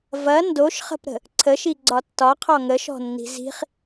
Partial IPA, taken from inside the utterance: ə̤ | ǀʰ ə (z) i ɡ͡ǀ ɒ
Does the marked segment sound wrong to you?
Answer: yes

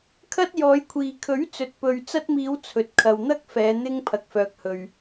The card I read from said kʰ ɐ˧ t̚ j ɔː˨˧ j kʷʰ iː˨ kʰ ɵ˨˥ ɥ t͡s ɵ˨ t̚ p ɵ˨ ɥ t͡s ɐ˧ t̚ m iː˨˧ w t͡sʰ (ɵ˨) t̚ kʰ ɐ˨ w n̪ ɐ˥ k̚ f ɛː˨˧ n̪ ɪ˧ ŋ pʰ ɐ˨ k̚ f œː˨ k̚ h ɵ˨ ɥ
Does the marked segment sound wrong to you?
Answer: no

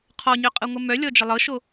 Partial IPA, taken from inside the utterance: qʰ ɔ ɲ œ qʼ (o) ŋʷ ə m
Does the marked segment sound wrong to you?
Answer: yes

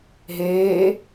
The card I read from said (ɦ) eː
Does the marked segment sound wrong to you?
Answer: no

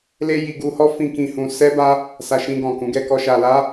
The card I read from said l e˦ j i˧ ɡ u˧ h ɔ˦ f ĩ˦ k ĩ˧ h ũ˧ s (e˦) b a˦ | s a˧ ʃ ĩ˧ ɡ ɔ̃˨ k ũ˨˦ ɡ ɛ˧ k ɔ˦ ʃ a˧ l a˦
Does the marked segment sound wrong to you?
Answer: yes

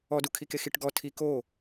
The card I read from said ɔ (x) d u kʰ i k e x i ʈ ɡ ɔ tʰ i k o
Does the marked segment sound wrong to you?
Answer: yes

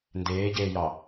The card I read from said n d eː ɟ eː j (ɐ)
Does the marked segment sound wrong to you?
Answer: yes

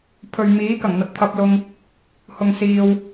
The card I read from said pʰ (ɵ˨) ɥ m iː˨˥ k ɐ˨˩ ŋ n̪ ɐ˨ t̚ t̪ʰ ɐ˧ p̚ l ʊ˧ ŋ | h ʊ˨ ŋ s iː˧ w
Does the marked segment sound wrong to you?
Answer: no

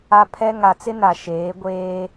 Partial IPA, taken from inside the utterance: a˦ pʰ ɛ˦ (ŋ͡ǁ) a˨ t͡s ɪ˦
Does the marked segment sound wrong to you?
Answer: yes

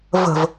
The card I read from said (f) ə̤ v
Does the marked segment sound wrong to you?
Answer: yes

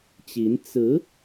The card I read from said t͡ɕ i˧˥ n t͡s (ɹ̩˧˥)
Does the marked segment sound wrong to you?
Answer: no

